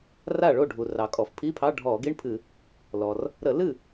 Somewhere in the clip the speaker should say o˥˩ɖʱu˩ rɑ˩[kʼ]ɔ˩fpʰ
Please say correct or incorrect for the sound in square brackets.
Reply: correct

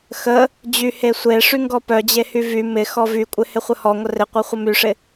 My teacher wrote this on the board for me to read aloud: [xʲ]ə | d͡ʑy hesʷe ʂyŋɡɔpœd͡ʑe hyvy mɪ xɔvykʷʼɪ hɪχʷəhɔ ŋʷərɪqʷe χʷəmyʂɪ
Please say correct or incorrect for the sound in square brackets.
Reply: incorrect: x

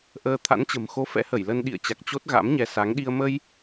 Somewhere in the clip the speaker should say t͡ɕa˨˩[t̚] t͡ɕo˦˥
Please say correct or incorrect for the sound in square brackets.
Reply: incorrect: k̚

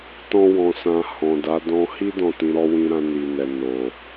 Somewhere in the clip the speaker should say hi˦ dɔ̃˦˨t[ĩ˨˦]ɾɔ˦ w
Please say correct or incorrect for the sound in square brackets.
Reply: correct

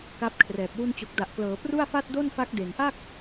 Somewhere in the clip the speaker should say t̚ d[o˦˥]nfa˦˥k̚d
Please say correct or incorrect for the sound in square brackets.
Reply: incorrect: o˥˩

